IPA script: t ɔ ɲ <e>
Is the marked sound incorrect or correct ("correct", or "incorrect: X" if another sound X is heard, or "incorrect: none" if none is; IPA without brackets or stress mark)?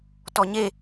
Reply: correct